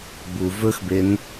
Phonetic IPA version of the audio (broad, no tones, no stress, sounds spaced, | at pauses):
b u v ɵ x b e n